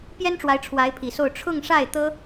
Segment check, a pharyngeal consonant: absent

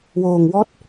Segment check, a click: absent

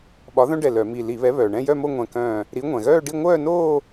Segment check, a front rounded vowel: present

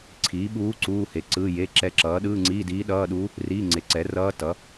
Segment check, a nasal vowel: absent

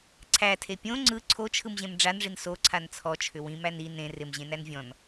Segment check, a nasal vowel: present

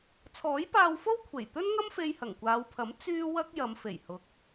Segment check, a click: absent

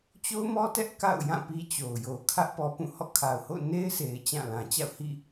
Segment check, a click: absent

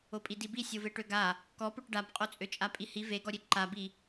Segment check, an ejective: present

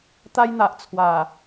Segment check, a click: absent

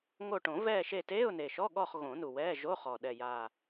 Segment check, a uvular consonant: present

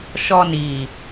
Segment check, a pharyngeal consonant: absent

